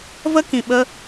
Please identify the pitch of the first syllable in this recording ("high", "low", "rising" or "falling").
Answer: high